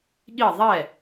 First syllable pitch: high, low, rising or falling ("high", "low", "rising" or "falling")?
falling